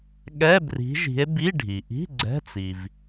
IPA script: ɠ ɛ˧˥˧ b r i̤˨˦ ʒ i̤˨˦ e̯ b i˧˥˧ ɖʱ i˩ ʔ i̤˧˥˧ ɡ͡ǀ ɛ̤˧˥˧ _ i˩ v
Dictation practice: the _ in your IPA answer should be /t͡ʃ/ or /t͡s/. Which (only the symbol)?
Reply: t͡s